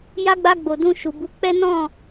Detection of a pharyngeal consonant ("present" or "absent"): absent